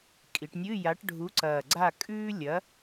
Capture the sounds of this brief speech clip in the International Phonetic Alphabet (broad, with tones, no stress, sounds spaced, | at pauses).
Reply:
kʼ i˩˧ ʈ nʲ ɨ˧˥˧ j a˨˥ ʈ ɖʱ u˨˥ ǀ ɐː˨˩ ɡ͡ǀ a˥˨ kʼ ʉː˥ lʲ ɐ˨˥